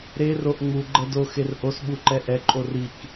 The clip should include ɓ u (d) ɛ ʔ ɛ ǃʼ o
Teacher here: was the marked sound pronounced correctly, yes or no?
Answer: no